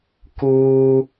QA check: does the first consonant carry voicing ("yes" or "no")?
no